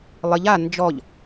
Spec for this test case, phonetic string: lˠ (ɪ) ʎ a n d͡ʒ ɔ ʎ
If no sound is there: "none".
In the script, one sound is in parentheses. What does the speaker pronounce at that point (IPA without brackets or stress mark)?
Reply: ɪ